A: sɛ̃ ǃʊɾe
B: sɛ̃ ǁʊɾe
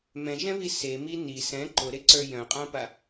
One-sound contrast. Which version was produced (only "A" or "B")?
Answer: A